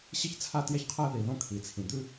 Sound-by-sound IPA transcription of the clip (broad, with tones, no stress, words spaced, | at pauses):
ɕɨ˥çt͡sʰa˥tjɛ˥çqʰɜ˥ ði˩ðõ˥ kʰi˩t͡sʰĩ˩ d̪ʉ˥